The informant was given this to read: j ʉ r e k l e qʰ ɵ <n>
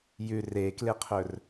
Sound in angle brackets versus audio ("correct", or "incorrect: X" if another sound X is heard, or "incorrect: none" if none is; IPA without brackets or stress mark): incorrect: r